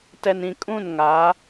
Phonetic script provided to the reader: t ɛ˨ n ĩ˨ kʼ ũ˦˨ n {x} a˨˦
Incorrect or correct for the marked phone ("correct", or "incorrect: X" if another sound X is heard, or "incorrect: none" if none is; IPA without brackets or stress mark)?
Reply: incorrect: ŋ